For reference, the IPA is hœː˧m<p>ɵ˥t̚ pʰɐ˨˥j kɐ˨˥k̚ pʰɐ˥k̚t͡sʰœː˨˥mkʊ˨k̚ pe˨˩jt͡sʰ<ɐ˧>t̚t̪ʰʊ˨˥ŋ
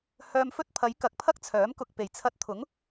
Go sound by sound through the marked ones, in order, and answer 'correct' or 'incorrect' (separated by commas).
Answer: incorrect, correct